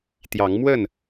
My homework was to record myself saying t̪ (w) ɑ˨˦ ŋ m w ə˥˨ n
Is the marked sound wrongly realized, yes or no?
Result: yes